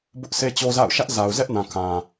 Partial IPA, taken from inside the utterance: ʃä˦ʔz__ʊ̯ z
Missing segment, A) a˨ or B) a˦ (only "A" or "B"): A